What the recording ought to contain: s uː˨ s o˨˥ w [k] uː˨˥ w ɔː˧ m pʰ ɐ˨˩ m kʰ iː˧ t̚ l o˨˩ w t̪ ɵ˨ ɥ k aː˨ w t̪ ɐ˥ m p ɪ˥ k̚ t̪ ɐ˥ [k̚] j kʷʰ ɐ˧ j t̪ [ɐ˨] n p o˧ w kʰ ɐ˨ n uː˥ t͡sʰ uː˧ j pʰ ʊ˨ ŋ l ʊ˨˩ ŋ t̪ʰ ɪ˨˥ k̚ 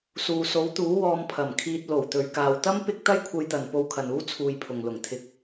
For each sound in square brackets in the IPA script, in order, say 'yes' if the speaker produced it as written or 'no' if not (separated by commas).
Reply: no, no, yes